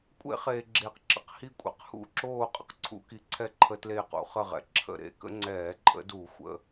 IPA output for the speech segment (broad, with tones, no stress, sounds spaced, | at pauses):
kʷʼ ḛ˧˩˧ χ eː˩ ɡ͡ǁ eː˩ q ǁ ə̰˨˦ q h i˧˩ kʷʼ ḛ˩ q h ṵ˧˩˧ ǁ oː˧˩ qʼ ə̰˧˩ q ǀʰ ṵ˧˩˧ k i˩˧˩ ǀʰ ɛ˦ ǃʰ ə˧˩˧ t l eː˧˩ q ṵ˩ χ ə˧˩ ʁ ɛ̰˩ ǁʰ ə̰˧˩ ɾ ḛ˩˧˩ k ə̰˦ ŋ͡ǀ ɛː˧˩˧ ǃʼ ə̰˨˦ d u˧˩˧ xʷ ə̰˩˧˩